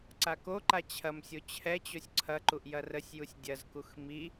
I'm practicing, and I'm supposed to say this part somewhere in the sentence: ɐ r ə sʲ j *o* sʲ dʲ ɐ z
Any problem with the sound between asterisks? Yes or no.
yes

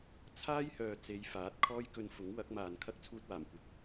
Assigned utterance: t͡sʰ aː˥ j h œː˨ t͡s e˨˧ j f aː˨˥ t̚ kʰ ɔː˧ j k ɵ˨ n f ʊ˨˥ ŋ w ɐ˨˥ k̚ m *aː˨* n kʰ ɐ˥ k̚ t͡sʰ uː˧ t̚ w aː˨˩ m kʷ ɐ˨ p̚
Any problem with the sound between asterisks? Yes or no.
no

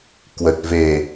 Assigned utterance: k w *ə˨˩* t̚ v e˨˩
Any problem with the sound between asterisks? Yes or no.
no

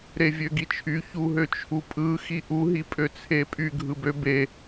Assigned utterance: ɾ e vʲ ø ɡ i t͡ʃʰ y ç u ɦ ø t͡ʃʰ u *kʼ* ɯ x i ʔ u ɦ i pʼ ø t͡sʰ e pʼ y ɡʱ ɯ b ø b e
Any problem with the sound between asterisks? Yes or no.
yes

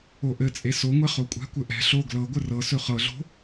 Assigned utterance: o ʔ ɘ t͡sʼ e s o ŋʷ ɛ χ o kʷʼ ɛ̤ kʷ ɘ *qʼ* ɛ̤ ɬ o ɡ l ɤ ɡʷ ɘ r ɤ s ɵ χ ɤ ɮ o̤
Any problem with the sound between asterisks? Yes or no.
yes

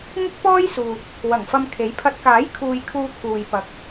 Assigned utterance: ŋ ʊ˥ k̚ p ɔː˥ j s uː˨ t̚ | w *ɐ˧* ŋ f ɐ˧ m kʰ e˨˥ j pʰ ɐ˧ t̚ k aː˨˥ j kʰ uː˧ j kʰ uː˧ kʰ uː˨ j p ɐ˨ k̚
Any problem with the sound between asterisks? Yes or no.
yes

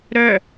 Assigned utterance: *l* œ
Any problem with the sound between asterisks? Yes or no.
yes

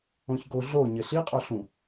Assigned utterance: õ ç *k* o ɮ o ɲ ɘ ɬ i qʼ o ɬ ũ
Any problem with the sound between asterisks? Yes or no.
yes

